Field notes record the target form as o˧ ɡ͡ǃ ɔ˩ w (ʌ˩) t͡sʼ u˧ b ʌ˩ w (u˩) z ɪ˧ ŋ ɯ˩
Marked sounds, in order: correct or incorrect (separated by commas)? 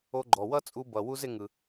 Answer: incorrect, incorrect